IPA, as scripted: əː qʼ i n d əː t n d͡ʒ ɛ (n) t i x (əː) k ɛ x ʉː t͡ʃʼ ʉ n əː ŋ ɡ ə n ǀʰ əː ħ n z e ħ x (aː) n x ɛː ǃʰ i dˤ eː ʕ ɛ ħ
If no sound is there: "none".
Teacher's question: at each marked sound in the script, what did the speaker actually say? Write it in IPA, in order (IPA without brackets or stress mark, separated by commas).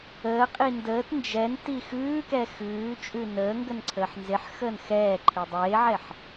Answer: n, ʉː, əː